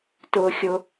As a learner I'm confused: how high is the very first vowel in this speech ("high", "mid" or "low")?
high